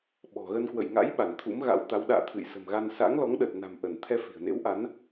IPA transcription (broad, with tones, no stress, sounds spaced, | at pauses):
ɓ ɔ̤˨˩ ɣ ə˧ n k w ə̰˧˨ j ŋ a̰˧˥ j ɓ a˧˩ n t̪ʰ ṵ˧˥ m ɣ a̰˧˥ w t̪ a˨˦ w ɗ a̰ː˧˨ t̪ʰ ɨ̰˧˨ j s ə̤˨˩ m ɣ a˧ n s a̰˧˥ ŋ l ɔ˨˦ ŋ ɗ ə˨˩ t̚ n a̤˨˩ m ʔ ə˧˩ n t̪ʰ ɛ˧ f i̤˨˩ ə̯ n ḛ˧˥ w ʔ a˨˦ n